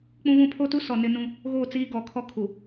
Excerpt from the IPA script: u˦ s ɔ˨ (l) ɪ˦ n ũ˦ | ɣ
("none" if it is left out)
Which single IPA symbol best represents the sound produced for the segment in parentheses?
n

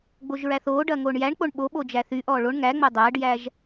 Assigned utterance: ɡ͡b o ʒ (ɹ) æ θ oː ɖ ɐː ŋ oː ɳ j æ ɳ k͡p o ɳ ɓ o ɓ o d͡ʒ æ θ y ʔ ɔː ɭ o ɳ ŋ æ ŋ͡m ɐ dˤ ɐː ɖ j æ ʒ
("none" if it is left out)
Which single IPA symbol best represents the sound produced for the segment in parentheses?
ɹ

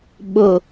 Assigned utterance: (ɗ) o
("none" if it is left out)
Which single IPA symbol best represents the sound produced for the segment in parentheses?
ɓ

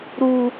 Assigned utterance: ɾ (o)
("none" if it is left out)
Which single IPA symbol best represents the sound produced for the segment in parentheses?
u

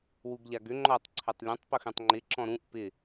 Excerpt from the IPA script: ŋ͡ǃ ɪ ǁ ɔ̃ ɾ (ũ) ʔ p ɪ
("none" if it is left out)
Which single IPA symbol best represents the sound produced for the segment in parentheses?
ũ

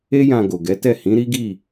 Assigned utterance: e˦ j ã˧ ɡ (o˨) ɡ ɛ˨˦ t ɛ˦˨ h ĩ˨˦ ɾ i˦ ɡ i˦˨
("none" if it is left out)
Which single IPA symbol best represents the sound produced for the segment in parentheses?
o˨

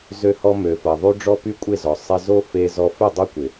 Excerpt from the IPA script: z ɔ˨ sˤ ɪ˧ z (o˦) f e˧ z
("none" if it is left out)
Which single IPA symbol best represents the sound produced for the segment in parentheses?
o˦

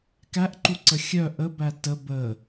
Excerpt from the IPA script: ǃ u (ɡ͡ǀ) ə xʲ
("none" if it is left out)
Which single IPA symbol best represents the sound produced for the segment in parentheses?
ǀ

